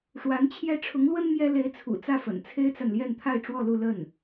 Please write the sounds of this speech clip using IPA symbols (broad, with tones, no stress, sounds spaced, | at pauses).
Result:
ʂ w a˧˥ n t͡ɕʰ j ɛ˥ ʈ͡ʂʰ ʊ˧˥ ŋ l w ə˥ n m j ɛ˥ l e˧˥ ɪ̯ t͡sʰ ṵ˨˩ t͡s ä˥˩ f ə̰˨˩ n t͡sʰ e˥ ɪ̯ t͡s a˨ n l j ɛ˥˧ n t̪ʰ a˥˧ ɪ̯ ʈ͡ʂ w ɔ˥˧ l u˥˧ l ə˥˩ n